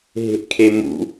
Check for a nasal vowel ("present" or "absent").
absent